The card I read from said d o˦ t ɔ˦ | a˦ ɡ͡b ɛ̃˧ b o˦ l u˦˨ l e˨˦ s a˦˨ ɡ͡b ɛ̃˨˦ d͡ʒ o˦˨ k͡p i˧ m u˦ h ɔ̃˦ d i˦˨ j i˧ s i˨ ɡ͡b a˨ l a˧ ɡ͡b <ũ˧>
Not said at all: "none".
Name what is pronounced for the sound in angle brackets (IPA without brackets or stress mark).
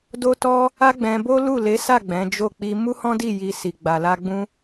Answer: ũ˧